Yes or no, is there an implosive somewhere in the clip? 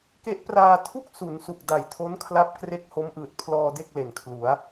no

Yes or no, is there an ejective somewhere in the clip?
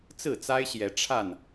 no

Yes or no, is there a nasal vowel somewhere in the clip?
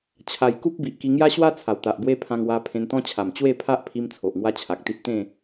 yes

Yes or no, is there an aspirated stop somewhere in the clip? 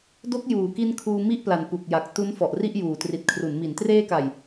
yes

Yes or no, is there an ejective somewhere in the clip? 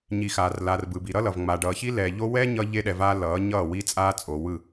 yes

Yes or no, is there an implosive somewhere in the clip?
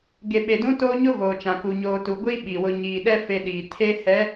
yes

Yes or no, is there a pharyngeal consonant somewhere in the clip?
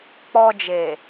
no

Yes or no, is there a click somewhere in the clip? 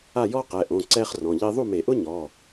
yes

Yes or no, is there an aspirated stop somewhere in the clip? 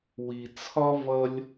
yes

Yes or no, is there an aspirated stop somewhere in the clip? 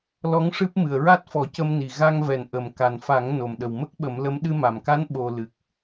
no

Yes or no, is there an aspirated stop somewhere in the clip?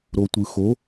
no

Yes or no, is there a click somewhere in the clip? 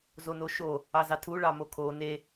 no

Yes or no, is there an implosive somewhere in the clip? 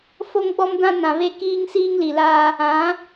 no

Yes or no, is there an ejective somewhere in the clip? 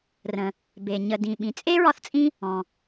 yes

